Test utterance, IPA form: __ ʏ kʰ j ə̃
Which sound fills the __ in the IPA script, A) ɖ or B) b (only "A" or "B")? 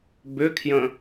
B